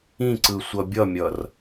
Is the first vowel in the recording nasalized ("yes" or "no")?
yes